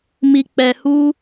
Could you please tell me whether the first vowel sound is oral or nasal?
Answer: oral